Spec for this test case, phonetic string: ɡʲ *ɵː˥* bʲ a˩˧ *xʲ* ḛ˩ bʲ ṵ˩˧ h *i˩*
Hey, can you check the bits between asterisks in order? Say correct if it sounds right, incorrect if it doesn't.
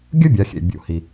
incorrect, correct, correct

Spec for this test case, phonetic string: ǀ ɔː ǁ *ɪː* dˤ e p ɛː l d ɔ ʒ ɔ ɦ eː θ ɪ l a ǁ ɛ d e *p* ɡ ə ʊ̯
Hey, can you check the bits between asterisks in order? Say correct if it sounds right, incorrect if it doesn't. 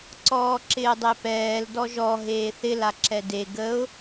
correct, incorrect

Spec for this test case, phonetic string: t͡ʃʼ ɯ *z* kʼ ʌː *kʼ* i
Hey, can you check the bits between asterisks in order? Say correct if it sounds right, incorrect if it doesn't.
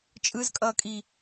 correct, correct

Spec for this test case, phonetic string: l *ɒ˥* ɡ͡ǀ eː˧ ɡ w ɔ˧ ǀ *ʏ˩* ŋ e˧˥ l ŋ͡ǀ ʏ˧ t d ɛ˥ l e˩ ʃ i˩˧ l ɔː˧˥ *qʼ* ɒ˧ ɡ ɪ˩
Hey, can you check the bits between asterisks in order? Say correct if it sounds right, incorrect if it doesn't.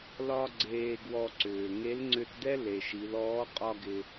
correct, incorrect, correct

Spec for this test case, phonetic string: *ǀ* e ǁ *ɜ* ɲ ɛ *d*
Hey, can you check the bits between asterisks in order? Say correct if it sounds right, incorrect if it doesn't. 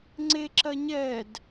incorrect, correct, correct

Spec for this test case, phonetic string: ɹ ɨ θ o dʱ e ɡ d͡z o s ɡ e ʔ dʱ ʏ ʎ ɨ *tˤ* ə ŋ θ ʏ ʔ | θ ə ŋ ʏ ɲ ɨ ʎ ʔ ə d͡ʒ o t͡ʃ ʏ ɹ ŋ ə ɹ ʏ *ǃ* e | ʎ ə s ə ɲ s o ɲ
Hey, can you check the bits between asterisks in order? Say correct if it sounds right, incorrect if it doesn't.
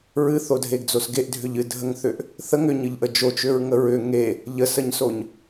incorrect, incorrect

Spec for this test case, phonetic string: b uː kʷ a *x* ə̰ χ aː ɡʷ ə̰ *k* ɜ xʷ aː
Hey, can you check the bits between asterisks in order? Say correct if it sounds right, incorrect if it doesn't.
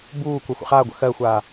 incorrect, incorrect

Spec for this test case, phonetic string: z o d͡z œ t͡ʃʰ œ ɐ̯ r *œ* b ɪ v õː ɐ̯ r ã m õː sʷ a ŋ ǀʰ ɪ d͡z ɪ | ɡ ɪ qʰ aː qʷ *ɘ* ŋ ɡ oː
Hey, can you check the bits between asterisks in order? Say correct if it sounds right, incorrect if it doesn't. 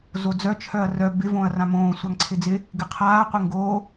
correct, correct

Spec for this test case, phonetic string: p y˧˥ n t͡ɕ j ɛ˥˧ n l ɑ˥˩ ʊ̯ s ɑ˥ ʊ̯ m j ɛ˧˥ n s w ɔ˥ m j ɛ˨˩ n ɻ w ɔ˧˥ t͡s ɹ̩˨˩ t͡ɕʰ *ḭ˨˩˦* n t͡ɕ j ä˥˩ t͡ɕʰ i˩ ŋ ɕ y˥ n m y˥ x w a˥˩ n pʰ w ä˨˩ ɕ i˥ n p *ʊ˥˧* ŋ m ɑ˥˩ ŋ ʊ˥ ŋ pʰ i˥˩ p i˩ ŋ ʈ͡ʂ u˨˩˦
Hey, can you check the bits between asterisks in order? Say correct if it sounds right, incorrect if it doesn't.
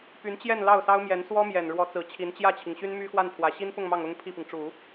incorrect, correct

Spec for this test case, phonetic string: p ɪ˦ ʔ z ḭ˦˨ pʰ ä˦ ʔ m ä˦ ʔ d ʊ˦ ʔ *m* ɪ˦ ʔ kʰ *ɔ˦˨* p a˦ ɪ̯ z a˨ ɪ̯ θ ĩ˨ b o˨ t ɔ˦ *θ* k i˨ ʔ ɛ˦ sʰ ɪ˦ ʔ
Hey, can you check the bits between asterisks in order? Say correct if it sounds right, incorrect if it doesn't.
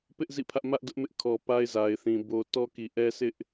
correct, incorrect, incorrect

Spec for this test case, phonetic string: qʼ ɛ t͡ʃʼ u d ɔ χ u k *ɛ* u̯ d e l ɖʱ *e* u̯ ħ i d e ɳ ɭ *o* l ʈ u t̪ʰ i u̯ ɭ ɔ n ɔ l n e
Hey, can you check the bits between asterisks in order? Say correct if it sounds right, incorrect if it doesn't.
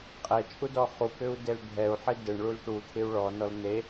incorrect, incorrect, incorrect

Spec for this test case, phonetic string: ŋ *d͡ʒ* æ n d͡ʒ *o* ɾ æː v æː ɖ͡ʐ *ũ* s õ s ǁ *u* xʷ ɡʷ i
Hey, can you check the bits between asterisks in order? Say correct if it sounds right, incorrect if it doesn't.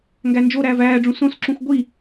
incorrect, correct, correct, incorrect

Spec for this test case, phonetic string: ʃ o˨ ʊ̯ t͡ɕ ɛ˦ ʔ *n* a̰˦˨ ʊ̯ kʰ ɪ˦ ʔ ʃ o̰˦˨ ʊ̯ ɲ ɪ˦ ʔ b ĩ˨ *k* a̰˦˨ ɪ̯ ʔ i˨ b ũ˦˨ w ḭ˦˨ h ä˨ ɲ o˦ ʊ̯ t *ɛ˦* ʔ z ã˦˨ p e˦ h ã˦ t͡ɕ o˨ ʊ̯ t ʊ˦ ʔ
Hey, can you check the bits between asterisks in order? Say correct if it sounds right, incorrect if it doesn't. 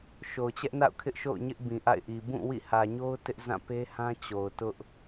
correct, incorrect, incorrect

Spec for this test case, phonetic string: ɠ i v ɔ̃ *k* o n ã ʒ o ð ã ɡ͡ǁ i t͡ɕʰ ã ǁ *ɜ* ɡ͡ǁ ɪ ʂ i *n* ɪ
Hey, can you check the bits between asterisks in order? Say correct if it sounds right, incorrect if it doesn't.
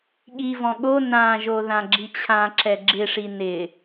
incorrect, incorrect, correct

